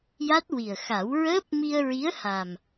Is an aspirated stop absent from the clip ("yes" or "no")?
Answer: yes